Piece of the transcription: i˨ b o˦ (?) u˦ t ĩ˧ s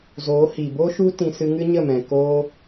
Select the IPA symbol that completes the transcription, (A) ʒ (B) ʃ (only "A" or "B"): B